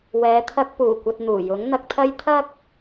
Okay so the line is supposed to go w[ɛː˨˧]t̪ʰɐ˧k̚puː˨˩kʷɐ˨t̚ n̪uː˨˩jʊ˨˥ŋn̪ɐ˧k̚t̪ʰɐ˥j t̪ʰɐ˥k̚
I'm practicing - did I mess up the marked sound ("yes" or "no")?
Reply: no